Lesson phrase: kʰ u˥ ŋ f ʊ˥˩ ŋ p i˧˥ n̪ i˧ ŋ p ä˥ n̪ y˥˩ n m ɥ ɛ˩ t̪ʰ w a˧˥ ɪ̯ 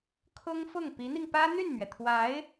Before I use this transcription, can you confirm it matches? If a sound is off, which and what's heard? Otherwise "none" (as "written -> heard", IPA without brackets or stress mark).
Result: u˥ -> ʊ˥